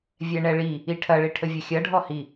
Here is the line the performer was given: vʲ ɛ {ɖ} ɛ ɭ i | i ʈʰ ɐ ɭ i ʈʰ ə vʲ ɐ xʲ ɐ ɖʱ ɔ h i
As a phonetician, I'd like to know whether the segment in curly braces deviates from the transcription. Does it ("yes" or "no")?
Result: yes